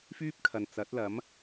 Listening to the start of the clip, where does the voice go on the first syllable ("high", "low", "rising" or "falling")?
high